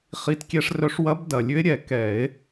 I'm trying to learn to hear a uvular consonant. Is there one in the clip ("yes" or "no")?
yes